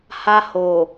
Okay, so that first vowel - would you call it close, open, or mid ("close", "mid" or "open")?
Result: open